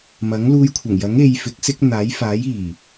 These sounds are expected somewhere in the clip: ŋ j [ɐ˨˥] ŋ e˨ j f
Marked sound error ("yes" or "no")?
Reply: no